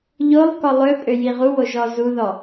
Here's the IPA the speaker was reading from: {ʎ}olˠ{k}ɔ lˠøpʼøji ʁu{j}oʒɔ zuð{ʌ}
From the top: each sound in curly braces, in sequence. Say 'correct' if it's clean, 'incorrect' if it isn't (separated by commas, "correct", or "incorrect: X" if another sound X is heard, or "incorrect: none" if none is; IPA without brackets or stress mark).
correct, correct, incorrect: w, incorrect: ɔ